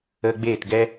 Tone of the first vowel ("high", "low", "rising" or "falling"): high